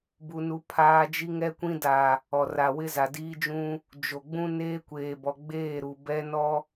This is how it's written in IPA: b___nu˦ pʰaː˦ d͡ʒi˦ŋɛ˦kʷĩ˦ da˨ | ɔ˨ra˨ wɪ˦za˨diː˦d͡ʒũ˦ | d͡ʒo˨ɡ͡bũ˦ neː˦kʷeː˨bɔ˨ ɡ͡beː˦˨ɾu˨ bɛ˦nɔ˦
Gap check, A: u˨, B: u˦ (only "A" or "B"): B